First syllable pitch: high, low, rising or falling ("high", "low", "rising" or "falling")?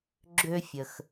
high